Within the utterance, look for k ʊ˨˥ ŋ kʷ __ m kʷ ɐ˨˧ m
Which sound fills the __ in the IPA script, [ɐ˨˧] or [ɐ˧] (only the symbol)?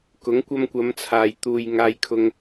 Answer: ɐ˧